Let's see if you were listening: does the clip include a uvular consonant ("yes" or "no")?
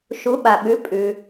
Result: no